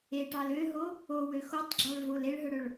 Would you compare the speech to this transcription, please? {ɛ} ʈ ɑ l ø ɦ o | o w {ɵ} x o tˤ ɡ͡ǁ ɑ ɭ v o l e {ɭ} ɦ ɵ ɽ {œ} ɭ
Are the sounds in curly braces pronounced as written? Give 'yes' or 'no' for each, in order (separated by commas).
no, no, yes, no